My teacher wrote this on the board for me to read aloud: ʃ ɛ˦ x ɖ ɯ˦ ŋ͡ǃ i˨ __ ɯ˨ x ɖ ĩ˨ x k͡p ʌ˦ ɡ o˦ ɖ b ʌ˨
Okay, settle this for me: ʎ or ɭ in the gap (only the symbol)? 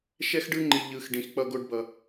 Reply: ʎ